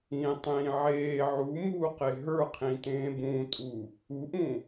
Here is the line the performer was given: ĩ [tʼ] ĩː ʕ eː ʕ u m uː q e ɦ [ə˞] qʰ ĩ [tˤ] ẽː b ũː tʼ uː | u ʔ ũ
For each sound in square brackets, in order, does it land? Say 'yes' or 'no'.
no, yes, no

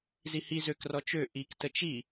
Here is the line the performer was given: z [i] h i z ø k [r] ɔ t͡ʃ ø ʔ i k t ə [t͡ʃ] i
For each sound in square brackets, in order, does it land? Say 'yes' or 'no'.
yes, yes, yes

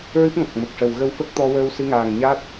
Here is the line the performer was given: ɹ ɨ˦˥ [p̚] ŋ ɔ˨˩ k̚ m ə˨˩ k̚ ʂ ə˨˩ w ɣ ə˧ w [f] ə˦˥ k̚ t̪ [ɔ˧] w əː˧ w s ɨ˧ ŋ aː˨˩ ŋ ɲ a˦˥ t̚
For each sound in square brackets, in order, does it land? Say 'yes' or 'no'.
yes, yes, yes

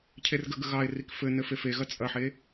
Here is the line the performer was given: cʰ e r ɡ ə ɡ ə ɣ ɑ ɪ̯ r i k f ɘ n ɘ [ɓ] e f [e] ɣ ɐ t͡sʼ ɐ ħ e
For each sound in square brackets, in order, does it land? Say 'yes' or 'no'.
no, yes

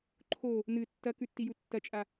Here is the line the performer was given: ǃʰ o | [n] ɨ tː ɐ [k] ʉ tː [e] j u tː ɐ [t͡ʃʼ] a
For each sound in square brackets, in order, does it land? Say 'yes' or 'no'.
yes, yes, no, yes

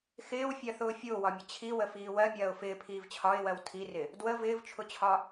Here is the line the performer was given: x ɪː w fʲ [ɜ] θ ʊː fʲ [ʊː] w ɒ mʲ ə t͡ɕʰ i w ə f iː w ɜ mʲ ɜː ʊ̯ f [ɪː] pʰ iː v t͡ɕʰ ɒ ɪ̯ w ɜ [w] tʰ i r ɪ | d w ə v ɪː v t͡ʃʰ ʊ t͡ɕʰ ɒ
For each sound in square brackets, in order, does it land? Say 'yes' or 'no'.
yes, yes, yes, yes

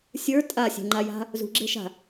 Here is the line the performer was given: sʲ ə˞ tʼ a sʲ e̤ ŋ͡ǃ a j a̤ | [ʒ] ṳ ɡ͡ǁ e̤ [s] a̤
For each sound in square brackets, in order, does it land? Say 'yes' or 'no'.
no, no

